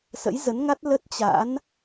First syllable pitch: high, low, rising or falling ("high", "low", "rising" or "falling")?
rising